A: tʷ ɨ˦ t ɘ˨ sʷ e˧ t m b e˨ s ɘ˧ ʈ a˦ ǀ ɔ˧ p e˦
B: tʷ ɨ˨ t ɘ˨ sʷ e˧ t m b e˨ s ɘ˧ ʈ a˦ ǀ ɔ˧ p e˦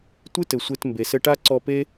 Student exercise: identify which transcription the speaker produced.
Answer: A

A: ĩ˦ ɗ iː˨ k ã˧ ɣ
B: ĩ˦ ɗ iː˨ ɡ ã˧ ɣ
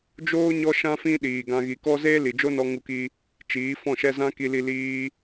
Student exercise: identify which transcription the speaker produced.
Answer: B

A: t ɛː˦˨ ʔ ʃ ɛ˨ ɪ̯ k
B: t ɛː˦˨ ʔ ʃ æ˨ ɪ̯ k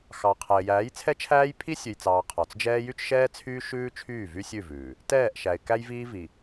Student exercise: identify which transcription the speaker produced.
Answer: B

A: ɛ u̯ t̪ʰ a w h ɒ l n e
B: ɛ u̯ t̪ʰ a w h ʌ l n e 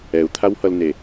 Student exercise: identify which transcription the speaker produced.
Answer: B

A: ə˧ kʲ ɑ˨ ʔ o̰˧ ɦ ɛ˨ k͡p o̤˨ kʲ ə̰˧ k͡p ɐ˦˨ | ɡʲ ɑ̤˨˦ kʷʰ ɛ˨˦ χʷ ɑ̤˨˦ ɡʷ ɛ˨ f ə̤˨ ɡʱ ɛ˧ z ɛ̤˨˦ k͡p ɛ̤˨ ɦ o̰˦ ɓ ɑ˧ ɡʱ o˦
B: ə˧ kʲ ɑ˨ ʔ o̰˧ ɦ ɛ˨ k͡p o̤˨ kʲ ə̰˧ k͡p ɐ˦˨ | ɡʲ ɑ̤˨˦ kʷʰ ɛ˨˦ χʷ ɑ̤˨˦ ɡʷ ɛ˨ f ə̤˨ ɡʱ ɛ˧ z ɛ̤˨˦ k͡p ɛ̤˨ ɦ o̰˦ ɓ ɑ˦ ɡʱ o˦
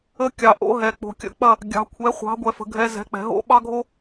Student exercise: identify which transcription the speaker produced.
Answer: B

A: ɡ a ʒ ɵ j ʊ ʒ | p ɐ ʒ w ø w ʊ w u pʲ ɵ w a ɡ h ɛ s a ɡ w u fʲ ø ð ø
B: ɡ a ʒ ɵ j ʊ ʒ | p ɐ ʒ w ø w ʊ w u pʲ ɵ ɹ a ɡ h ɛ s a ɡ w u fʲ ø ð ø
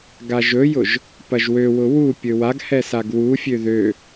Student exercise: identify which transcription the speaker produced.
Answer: A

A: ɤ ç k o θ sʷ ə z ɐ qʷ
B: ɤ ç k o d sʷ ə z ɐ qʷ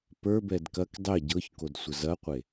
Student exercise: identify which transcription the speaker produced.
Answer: B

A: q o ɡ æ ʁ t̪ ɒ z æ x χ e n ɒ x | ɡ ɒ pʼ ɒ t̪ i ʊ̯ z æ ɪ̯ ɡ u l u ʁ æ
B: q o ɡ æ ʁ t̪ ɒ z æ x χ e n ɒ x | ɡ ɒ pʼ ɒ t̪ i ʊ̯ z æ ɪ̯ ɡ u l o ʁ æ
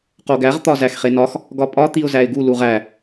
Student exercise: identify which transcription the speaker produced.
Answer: A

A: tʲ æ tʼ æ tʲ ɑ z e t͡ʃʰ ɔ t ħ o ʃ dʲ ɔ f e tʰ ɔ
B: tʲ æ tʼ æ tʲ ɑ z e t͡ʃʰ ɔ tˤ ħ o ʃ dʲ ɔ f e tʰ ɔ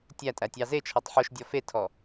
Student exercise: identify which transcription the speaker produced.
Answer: B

